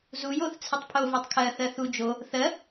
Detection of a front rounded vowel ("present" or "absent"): absent